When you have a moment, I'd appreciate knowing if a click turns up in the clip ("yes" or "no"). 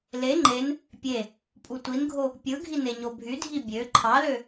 yes